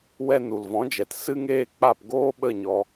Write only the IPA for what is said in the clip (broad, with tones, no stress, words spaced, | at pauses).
wɛ˧nu˨lvɔ̃˨˦d͡ʒɛ˨t sɨ˦ŋeː˦k͡pa˦˨p ɡoː˦ɓə˦˨ɲɔ˧